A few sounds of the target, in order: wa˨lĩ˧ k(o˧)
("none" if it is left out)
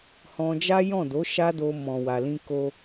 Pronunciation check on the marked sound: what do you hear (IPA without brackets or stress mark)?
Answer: o˧